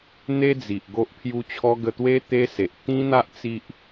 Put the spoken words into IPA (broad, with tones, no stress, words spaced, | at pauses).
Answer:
n̪e˦d͡zi˨ʔ ɡo˦ʔpʰju˦t͡ɕʰɔ˦ ɡə˧t̪we˦ t̪e˦se˨ʔ t̪ĩ˦n̪a˦ʔ t͡si˦ʔ